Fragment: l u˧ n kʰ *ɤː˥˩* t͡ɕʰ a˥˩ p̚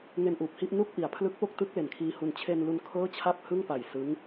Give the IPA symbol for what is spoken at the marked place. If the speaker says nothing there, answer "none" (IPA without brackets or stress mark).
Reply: ɤː˥˩